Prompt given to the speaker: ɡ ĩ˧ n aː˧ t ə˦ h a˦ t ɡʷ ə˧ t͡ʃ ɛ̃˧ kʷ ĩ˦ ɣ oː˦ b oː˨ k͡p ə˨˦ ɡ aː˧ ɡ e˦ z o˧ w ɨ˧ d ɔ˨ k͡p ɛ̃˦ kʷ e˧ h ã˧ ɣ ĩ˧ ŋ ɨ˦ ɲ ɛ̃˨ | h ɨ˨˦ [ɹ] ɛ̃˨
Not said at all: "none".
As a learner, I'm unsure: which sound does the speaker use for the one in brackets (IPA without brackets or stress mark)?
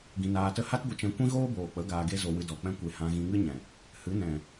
n